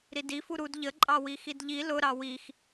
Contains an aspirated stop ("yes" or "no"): no